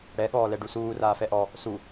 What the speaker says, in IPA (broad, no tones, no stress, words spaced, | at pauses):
ɽɛ ɠɔːlɛɖusuː raːfɛʔɔ | su